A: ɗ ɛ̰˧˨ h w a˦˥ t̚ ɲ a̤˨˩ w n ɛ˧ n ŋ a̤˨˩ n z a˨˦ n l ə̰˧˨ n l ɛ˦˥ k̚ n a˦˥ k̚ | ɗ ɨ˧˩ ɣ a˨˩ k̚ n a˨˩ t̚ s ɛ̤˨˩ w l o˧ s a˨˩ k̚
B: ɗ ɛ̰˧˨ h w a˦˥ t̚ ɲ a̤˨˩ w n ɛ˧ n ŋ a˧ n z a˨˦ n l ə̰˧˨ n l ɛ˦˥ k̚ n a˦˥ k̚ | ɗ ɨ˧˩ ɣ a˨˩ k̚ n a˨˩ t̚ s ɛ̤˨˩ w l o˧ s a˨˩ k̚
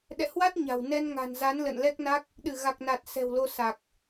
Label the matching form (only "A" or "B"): A